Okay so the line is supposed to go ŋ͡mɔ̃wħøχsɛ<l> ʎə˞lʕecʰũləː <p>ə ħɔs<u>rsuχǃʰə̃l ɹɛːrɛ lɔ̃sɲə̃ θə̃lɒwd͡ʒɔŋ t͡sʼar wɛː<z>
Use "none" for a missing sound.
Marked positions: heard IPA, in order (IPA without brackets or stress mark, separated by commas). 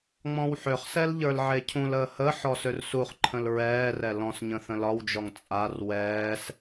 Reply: l, h, ø, s